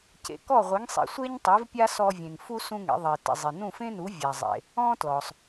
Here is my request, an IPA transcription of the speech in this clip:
c ḛ˩ k ɔ˥˩ ʁʷ i˩˥ ŋ sˤ ḭ˩ sʷ e˥ ɲ tˤ i˩˥ v pʲ a˥ s ɔ˧ vʲ ẽ˩ ŋ f u˥ s ũ˥ ŋ ḛ˩˥ ðˤ i˩ t ḭ˩ zˤ i˩ n ũ˥˩ f ẽ˥ n u˩˥ vʲ a˩ zˤ ḛ˩ | ɔ̃˥ t l ɔ˩ sˤ

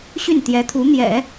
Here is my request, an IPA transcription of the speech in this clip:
ɕ y˥˩ n t̪ j ɛ˧˥ t̪ʰ u˧˥ n̪ j ɛ̰˨˩˦

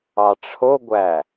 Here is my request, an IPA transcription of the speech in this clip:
ɑ ʈ͡ʂʰ o ɡʷ æ

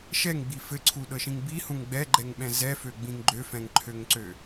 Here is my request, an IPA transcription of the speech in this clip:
ʃ ɛ ŋ ɡ͡b i f ɘ ǀʰ u ɗ ɤ ʃ ĩ ŋ b i h ũ ŋ ɡ͡b ɛ ɡ͡ǃ ɛ ŋ ɓ ɛ̃ z ɛ f ø ɡ͡b ĩ ŋ ɡ͡ǃ ø f ɛ̃ ŋ ǃʰ ø ŋ ǀ ø

